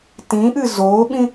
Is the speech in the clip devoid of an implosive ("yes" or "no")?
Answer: no